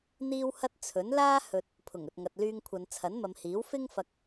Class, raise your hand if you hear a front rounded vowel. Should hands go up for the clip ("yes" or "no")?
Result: yes